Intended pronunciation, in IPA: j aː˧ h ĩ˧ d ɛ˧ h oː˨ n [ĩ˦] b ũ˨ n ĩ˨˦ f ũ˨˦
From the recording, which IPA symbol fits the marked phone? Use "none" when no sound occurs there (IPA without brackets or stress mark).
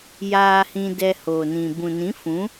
ĩ˨